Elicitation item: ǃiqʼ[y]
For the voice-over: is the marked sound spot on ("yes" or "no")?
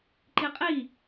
no